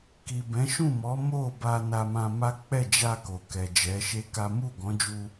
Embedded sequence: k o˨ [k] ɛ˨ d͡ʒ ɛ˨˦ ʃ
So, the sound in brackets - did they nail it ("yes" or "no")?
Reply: yes